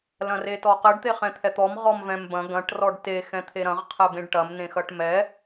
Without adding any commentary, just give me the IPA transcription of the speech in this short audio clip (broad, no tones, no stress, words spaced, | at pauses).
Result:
lɐ̃retɔqɘɖ t̪eχɛ̃t̪ʰɛt̪ɔm ʁɔmvɛ̃mbɐ̃ ɡɐ̃ʈ rɔɖte xɛ̃t̪ʰeɾɐ̃ʁ qʰɘbẽɖʈɐm nẽxɐʈmɛ